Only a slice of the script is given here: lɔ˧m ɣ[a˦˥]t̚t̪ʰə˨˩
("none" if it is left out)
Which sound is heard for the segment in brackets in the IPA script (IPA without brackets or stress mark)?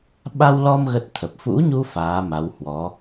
ə˦˥